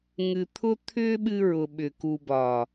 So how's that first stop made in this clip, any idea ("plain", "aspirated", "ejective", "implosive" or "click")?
aspirated